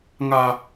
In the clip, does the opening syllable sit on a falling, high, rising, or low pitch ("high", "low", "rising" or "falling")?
high